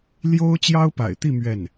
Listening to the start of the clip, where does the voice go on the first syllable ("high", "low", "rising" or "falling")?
high